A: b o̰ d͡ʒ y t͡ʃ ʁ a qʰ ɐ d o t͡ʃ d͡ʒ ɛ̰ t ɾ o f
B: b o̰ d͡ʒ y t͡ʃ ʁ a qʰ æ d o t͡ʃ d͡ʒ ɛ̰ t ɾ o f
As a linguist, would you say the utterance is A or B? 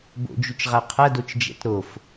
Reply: A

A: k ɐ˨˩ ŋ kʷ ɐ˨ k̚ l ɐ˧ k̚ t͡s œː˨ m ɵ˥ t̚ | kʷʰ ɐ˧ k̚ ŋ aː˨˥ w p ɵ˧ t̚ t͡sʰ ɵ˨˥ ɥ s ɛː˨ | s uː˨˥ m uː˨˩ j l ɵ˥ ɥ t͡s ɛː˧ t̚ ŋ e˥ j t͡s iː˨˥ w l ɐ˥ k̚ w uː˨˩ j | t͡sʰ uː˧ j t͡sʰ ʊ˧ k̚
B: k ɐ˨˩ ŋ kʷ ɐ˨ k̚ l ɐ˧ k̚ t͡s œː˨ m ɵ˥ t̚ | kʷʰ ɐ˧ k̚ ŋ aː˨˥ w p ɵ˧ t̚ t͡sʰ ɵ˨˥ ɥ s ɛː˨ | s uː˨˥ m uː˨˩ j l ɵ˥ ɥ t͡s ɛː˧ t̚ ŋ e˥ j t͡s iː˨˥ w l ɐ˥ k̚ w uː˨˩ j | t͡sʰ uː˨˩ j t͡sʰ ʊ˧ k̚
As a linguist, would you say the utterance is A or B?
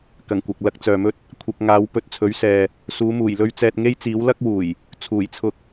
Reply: B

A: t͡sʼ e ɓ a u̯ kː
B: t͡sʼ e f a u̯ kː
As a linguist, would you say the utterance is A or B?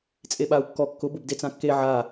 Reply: A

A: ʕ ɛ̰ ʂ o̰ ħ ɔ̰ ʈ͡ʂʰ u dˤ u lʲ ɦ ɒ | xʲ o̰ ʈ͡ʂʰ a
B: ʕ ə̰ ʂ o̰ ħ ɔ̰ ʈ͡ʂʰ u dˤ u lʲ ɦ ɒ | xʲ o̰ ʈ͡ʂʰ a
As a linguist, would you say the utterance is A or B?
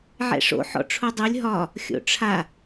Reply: A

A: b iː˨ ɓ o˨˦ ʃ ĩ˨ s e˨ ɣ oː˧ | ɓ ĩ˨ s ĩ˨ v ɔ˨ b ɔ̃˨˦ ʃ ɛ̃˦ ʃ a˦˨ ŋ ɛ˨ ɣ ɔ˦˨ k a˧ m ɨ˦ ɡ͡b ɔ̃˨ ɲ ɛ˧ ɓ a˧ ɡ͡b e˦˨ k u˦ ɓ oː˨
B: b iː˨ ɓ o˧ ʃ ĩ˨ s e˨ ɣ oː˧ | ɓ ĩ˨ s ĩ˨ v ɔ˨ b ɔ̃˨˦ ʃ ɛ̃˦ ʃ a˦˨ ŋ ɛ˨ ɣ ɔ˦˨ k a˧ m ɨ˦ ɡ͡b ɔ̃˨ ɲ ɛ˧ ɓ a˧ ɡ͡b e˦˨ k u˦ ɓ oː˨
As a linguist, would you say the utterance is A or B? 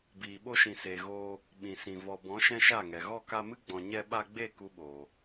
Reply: B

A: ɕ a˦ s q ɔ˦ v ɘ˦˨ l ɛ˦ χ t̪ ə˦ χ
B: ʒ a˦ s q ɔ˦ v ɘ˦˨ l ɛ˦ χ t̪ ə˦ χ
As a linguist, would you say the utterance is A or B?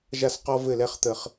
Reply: B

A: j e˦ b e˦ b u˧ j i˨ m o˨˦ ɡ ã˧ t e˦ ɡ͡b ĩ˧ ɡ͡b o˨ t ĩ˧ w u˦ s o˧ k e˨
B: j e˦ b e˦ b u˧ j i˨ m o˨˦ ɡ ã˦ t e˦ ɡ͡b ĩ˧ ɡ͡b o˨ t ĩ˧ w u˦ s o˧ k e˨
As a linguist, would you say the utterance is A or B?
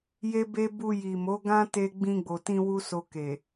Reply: B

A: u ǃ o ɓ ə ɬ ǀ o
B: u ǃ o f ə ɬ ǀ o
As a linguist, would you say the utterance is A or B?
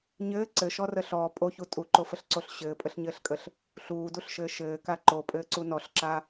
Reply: B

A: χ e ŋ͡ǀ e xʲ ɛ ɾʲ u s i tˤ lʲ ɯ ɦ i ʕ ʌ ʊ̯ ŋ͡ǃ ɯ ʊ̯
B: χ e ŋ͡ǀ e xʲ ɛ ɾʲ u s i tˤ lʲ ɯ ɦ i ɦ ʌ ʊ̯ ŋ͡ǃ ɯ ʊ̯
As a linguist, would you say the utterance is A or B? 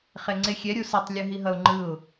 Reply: B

